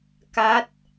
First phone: k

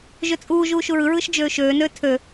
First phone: ʒ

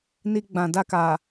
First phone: n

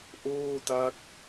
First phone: ʔ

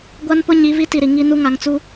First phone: ɡʷ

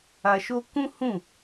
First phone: a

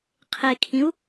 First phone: qʰ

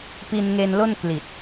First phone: p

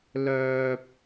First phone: l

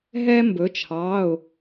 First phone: ɦ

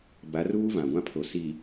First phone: b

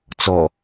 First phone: t͡s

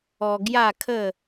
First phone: ɔ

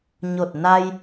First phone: ɲ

